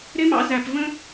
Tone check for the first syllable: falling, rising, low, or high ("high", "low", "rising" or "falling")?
high